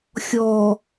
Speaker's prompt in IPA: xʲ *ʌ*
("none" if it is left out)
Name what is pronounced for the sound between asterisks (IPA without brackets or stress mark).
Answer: ɔ